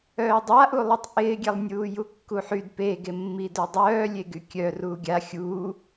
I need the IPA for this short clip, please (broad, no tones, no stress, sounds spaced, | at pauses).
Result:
œː dˤ a ʔ u lˠ i tˤ ʔ ɪː ɡʲ e lˠ nʲ uː j u kː u ħ y d p e ɡ e mː i d œ dˤ œː lʲ e ɡ y kʲ œ r uː ɡʲ a xʲ uː